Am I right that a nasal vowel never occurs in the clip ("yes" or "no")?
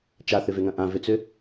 no